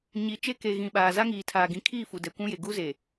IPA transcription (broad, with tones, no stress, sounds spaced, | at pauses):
ɲ i˨ t͡ʃ e˦ k e˨ ɣ ĩ˨ ɓ aː˨ z a˦ ŋ iː˨ tʰ aː˨ ɡ ĩ˨ kʰ iː˦˨ f u˨ d ɛ˨ kʷ ũ˦ j e˨ ɡ u˦ z e˨